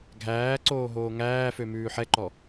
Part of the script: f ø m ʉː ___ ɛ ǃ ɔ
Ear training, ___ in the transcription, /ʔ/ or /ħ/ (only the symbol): ħ